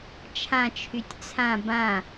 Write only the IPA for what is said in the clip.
t͡ʃʰ ã t͡ʃʰ y tʲ t͡sʰ ã b ã

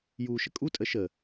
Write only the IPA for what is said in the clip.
j uː ʃ ə kʼ u tʼ ə ʃ ə

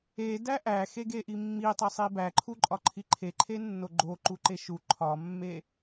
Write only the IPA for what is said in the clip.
e d æ ʔ æ x e ɡ e ʔ i mː i tˤ e sˤ i b æ ǃʰ u ǃʼ ɒ ǃʰ i ǃʰ e ǃʰ e nː o ɡ͡ǃ o ǃ u ǃ e ʃ u ǃʰ ɒ mː e

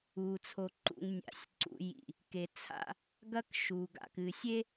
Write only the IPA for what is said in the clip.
uː˨ t͡sʰ o˨ ǃ ṵ˨ ŋ nʲ a̰˨ sʲ ǀ ṵ˨ j ḭ˨ | k e˨ t͡sʰ a̰˦ | ɡ ɐ˦ k ʃ u˨ ɡ a̰˨ k ɨ˨ sʲ e˦

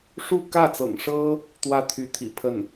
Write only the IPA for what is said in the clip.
ʂ u˥˧ k ä˥˩ t͡s ɤ̰˨˩ ŋ ʂ ɤ˥ | t̪ w ä˥˩ t̪ʰ y˧˥ t̪ʰ ḭ˨˩ pʰ ə˥˩ n

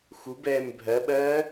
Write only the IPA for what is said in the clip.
x u b ɛː m bʱ ɜ ɓ ɜː

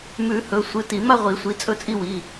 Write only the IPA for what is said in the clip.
m ʉ˨˩˦ h ɵ˩˧˩ sʷ ɨ˩˧˩ t i˨˩˦ m a˥˧ ʁʷ i˨˩˦ sʷ i˩˧˩ t͡sʼ ɵ˥˧ t͡sʼ i˥˧ w i˩˧˩

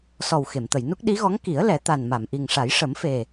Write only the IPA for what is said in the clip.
s ɔ˨˩ w x e˨˩˨ m t̪ ə˨˩˨ j n u˦˥ k̚ ɗ i˧˥ ɣ ɔ˧˥ ŋ k i˨˩˦ ə̯ l ɛ˨˩˦ t̪ a˨˩ n m a˨˩˨ m ʔ i˨˩ ŋ ʂ a˨˩˦ j ʂ ə˨˩˦ m f e˨˩

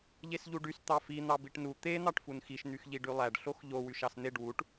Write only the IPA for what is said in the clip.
ʎ e s ʎ u ɖ y s t̪ ɑ f i n̪ ɑ b i ʈ n u t̪ e n̪ ɑ ʈ f u n x i ʃ n̪ y x ʎ i ɖ y lˠ æ ɖ ɬ o x ʎ o w y ʃ ɑ s n̪ e ɖ w u ʈ

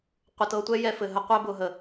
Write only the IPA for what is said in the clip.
qʷ ə˨ t ɤ˨ tʷ ɛ˦ j ɛ˧ f ɘ˨ ɦ ə˧ qʷ ɛ˧ b ʊ˨ ɦ ə˨

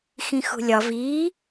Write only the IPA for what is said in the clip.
x ĩ x ṳ lʲ ɒ v iː

